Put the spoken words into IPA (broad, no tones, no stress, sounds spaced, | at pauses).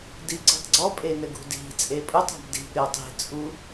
d i ǀ i̤ tˤ ɡ͡ǀ ɔ pʼ e n ɘ ɡ ṳ d i̤ t͡sʼ e pʼ u tˤ a̤ b d i̤ b ɾʲ ɔ tˤ i̤ t͡sʼ u